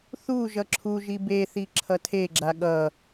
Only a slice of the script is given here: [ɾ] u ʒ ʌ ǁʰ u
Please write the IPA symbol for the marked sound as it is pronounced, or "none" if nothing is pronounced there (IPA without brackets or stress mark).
θ